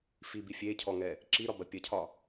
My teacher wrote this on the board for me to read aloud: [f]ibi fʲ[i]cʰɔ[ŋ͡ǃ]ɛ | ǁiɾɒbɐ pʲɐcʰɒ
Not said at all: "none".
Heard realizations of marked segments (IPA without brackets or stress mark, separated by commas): f, e, ŋ